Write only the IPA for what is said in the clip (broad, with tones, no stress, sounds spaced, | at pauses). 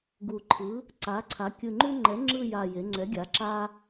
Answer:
ɡ u˨˩ ǃʰ ɯ˩˥ | ǀ a˩˥ ǀʰ a˩˥ kʲ ɯ˨˩ ŋ͡ǃ u˦ ŋ͡ǃ ɛ˩˥ ŋ͡ǁ ɯ˦˨ j a˨˩ j e˩˧ ŋ͡ǀ ɛ˩˥ ɡʲ a˩˧ ǁ a˦